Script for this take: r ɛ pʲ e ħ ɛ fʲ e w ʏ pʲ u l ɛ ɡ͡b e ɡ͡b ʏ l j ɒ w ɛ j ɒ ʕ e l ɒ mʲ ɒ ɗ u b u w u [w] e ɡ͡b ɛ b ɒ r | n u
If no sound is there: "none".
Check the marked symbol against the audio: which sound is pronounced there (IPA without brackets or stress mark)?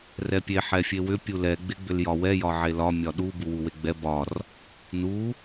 w